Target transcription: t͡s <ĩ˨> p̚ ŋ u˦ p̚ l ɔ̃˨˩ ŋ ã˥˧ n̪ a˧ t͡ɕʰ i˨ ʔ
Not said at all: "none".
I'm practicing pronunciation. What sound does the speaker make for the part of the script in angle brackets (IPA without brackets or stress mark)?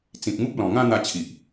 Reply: ĩ˨